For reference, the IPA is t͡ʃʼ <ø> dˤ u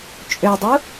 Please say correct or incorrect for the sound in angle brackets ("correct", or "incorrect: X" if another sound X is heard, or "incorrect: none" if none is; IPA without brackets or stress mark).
correct